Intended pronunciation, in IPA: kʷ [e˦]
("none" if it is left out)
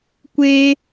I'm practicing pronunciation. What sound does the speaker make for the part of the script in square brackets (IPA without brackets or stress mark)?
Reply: e˦